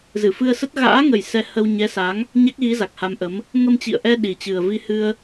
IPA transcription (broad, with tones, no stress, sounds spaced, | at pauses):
z ɨ˧˩ f ɨ˧ ə̯ s ə˦˥ t̚ ɣ a̰ː˧˥ ŋ ə˨˩ j s ɛ˧ h ə˧ w ɲ ɛ˨˦ s a˨˦ ŋ | ɲ a˦˥ k̚ ɣ i˨˦ z a˨˩ k̚ h a˧ m ʔ ə˨˦ m | ŋ ə˧ m t͡ɕ ḭ˧˨ ə̯ ʔ ɛ˧ ɗ i˨˩ t͡ɕ ɨ˨˩ ə̯ v i˧ h ɨ˧ ə̯